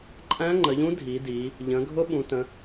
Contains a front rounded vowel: no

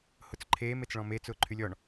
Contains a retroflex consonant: yes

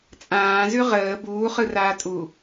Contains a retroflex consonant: no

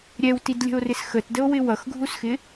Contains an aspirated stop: no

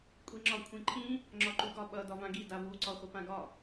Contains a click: yes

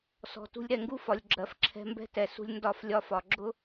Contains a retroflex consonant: no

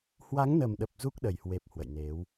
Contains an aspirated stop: no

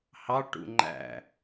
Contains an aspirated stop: no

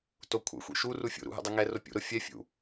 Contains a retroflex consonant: no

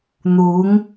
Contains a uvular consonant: no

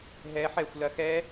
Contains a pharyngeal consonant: yes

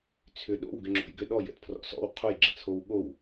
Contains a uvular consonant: yes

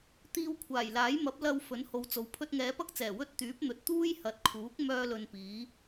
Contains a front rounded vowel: yes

